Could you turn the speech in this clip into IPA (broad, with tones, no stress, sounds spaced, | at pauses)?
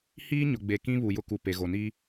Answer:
h iː˦ ɲ ʊ˨ ɡ͡b e˨ k ĩ˦ β u˨ j ʊ˦ k u˨ p e˨ ɣ o˨ n i˦